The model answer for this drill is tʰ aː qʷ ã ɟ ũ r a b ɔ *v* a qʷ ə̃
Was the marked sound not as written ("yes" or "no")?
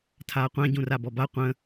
yes